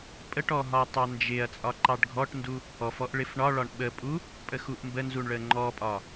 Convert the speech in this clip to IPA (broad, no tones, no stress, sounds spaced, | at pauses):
pʼ ə ʈ ɔ ɦ ɒ tˤ ɑ n d͡ʒ ɪ ɐ̯ t͡sʼ ɒ ǃ ɑ ɖ ɡʱ ɔ ʈ n d u | ɔ f ɔ ʔ ɭ ɪ f ɳ ɒ ɭ ɒ ɳ ɓ ə pʼ u | pʼ ə x u ʔ m b ə n z u ɳ ɭ ə ŋ͡ǃ ɔ pʼ ɒ